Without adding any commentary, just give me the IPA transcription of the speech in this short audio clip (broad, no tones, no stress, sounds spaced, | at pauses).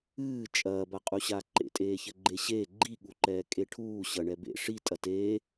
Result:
ɨː t͡ʃʼ ɐː b a qʼ u ɕ a ǃ ḛ tʼ eː ç ɘ ɡ͡ǃ e ɕ eː ɡ͡ǃ i ɠ u ǃ ɛː kʼ e ʈʰ uː ɕ ɐ ɳ ɛ b ḛ ʂ i tʼ ɐ t eː